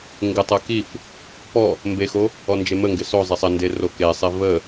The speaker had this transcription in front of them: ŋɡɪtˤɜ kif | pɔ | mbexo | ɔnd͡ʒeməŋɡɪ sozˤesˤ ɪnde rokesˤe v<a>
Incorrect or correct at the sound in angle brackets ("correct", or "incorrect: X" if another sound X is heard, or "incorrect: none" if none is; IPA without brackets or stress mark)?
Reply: incorrect: ə